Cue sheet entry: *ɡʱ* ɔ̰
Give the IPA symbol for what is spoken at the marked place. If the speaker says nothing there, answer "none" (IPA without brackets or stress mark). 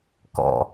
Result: k